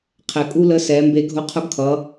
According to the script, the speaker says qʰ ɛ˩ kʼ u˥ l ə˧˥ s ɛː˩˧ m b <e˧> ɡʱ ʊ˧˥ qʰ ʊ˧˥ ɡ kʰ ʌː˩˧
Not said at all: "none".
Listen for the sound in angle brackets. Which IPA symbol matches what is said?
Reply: e˧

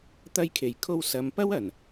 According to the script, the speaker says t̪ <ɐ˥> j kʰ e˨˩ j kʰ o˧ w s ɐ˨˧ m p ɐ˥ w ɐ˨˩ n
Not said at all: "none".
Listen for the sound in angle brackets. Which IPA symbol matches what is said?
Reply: ɐ˧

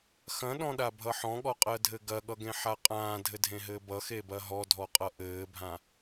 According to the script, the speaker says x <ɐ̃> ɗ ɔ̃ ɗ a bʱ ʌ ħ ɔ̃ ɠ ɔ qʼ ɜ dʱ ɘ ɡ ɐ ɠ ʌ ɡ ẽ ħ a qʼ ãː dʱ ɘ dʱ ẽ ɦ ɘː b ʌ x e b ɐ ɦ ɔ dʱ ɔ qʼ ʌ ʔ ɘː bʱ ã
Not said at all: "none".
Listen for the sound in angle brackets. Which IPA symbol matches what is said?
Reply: ɐ̃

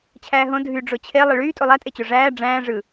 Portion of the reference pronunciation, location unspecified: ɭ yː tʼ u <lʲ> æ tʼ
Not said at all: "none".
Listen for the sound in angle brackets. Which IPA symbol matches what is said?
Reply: lˠ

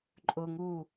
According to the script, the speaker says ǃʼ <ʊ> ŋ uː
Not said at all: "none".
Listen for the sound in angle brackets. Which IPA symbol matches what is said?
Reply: ʊ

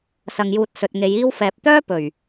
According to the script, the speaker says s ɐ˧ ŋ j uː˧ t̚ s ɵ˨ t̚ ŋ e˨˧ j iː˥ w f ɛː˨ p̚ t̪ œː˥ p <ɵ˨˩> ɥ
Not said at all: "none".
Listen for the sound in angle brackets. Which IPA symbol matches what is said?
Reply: ɵ˨˩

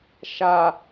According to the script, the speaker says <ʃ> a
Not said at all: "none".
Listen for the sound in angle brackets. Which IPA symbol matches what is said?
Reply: ʃ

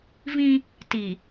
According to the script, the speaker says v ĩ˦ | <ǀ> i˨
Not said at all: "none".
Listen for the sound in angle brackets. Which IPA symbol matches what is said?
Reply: t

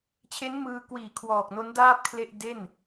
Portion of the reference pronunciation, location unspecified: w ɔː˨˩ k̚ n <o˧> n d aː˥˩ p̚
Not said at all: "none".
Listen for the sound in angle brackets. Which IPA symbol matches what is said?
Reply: o˦˥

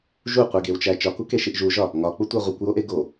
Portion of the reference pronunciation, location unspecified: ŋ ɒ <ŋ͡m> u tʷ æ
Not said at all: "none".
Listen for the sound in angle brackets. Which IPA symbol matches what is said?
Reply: k͡p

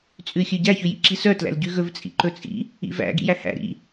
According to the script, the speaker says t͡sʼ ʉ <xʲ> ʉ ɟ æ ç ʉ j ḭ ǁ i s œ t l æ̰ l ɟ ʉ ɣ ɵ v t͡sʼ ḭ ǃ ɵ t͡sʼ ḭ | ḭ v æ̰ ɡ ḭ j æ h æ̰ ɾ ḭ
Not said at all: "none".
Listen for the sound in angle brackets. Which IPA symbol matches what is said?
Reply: xʲ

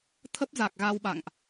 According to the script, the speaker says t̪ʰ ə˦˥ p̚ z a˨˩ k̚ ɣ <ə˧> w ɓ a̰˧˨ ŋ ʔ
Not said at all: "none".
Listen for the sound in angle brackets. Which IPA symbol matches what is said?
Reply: a˧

